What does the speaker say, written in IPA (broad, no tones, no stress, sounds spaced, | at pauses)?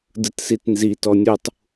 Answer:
d ɯ t s i t n z i t ɔ nʲ u tˤ